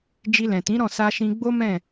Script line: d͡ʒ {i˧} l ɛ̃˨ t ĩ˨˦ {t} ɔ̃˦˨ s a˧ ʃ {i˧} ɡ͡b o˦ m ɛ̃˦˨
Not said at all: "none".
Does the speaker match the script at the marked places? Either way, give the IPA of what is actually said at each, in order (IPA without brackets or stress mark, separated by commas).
i˧, ɾ, ĩ˧